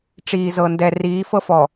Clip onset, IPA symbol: ʈ͡ʂ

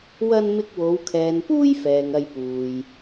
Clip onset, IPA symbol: w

